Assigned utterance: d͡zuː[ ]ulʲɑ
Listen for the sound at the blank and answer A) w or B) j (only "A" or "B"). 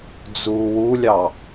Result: A